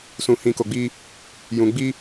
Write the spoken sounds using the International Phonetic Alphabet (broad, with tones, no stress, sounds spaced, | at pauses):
s ũ˨ h ĩ˨ k o˨ ɡ͡b i˧ | j ũ˨ ɡ͡b i˧